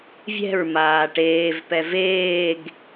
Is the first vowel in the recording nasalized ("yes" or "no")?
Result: no